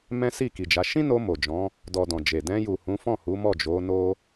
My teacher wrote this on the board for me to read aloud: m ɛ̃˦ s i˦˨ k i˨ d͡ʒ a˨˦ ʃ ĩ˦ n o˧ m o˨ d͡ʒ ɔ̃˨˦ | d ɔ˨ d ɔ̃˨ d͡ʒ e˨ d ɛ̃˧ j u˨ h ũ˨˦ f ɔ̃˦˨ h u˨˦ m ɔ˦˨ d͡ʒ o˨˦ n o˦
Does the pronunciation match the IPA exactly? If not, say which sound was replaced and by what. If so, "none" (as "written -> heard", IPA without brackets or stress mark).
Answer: none